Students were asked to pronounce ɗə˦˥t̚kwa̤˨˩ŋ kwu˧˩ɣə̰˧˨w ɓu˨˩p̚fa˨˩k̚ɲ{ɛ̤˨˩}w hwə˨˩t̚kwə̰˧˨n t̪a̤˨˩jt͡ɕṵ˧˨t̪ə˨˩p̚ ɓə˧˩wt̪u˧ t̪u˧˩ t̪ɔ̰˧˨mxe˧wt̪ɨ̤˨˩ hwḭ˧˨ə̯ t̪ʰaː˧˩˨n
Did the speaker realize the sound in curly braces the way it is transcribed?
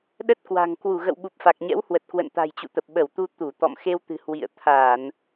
no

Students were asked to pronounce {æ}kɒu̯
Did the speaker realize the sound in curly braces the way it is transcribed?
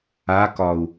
no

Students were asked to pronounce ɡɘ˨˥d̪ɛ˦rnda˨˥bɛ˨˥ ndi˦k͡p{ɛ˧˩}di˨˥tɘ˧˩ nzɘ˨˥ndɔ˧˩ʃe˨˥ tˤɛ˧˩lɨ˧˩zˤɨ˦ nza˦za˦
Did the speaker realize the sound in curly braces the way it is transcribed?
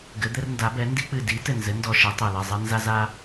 no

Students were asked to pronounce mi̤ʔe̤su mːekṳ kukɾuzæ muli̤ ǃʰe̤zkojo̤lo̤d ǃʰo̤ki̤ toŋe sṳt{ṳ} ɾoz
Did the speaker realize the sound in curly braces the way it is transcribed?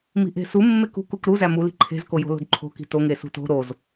no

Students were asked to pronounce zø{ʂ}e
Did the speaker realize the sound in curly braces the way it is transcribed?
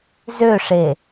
yes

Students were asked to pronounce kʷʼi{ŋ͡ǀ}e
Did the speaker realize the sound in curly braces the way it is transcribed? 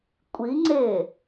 yes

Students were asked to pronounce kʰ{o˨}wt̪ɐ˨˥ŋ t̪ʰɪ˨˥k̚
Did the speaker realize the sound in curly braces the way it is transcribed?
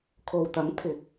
yes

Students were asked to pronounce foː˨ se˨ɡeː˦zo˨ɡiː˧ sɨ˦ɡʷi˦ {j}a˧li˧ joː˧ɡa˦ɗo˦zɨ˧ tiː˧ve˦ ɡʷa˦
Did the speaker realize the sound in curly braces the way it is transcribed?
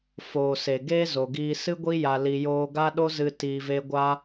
yes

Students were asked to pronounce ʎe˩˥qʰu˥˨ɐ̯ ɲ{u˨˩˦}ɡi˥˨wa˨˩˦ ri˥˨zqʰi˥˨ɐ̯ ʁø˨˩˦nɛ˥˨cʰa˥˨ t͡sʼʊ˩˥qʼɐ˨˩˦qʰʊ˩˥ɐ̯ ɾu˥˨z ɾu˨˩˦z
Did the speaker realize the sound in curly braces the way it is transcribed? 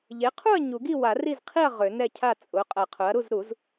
yes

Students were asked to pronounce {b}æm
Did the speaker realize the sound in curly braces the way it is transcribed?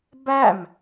yes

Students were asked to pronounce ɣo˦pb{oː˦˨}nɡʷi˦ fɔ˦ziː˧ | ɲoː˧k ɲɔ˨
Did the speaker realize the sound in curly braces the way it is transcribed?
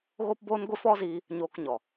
no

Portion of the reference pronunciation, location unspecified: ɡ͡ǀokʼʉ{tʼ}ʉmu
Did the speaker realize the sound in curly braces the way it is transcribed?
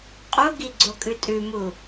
yes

